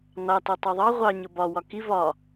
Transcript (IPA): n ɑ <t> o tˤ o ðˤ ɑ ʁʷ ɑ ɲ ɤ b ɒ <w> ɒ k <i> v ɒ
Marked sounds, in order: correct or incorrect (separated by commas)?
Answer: correct, correct, correct